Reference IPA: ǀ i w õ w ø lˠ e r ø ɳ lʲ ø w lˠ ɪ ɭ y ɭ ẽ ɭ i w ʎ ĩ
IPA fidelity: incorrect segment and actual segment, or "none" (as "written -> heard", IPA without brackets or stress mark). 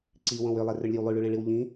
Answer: ɪ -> y